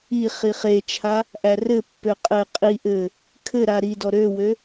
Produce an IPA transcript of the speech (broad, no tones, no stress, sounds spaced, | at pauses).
i χ i χ e t͡ʃʰ a | ʔ æ r ɘ pː ø qʼ ɘ qʼ i ʔ ɘ | kʰ ɘ ɾ a ɾ i d ɔ ɾ ø w ø